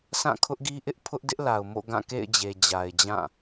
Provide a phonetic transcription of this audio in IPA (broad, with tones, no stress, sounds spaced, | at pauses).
s ã˦˨ kʰ ʊ˦ ʔ ɡ i˦ ʔ ɪ˦ ʔ pʰ ʊ˦ ʔ d ɪ˦ ʔ l a˨ ʊ̯ m o̰˦˨ ɡ ã˦˨ k ḛ˦˨ ɪ̯ d͡ʑ e˨ d͡ʑ a˨ ɪ̯ d͡ʑ ã˦˨